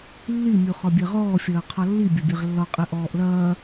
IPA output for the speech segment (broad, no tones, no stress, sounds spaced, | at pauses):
lː i mʲ u χ ɒ bʲ ɛ ʁ ɔː fʲ ɐː qʰ ɒ lː i bʲ ɐ bʲ ɛ ʁ lː ɒ qʼ ɛ ʔ ɔː ʔ l ɐː